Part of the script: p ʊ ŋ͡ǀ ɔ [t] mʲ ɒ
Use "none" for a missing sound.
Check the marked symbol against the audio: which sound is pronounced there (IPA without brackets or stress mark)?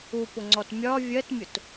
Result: t